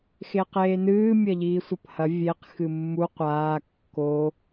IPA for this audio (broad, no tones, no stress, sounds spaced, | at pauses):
x e q eː n ɨː mʲ ɐ ʎ iː sʷ ɐ p h ɐ vʲ e q x ɨ mː u qʷ aː kː o